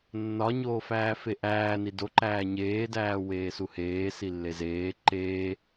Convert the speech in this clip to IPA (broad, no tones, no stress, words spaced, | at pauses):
nːɒɲoːfæːfe ʔæːni doǃæː ɲeːdæː weːsuheː silːezeː ǃeː